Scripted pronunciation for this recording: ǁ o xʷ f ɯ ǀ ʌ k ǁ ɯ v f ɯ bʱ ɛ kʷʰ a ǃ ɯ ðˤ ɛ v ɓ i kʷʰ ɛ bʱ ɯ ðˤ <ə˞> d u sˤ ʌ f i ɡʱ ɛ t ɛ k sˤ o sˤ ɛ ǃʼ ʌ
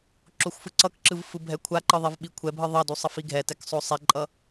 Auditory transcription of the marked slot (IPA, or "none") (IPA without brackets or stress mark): ʌ